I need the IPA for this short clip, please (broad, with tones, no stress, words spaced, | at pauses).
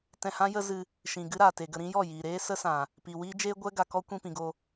tɛ̃˧hã˦ jə˦zɨ˧ | ʃĩ˨ ɡɨ˦ɾaː˨te˨ɡə˧ ɾĩ˦jɔ˦˨ jiː˨ɾeː˦sə˦ sã˨ | pi˨wiː˦ d͡ʒeː˦ ɡʷɛ˦ ɡa˧kɔ˦ kʷĩ˧pĩ˨ɡo˧